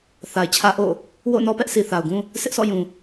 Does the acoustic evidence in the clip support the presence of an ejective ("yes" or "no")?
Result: no